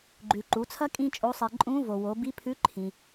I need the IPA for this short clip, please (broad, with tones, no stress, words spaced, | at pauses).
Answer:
ɡ͡ǃʉ˩ ǃu˩˧t͡sʰɐ˥ kʼĩ˥t͡ʃʼo˧˥sˤe˧ ǃʼũ˧˥vo˩wo˩˧ bi˧˥pʰʉ˧˥ ǃʰĩ˩